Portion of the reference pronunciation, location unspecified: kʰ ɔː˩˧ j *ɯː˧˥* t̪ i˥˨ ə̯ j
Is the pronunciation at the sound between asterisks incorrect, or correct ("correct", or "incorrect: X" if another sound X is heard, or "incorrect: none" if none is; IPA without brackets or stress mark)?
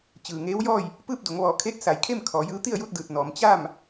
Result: correct